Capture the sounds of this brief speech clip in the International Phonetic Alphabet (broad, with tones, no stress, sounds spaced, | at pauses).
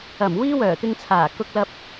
ɐ˨˩ m w iː˥ w œː˨˩ t̪ ɪ˧ ŋ t͡sʰ aː˨˩ k ʊ˥ k̚ l ɐ˥ p̚